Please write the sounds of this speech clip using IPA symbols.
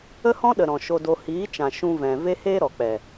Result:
ə˦ h ɔ̃˦ ɗ ə˨ ɾ ɔ̃˨ ʃ o˧ d o˧ h iː˨˦ t͡ʃ ã˨ ʃ ũ˧ v ɛ̃˨ v e˦ h eː˦ ɾ ɔ˨ k͡p ɛ˨

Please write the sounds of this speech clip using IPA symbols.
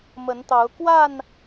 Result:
m ə˨˦ n t̪ ɑ˨˦ ʊ̯ k w a˥˨ n

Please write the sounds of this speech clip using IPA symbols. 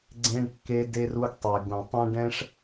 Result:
ɡ͡ǀ ẽ˧ ɖ kː e˧ d e˧ r u˧ ɡ tˤ e˩ ɡ ũ˩ tˤ ɛ̃˥ ɖ ɛ̃˧ ʂ

